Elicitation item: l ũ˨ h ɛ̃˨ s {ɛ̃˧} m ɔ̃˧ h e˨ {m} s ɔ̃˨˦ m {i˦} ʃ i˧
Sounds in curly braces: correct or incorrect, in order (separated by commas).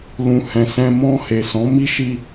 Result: correct, incorrect, correct